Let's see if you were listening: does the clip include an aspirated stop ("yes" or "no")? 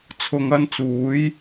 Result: yes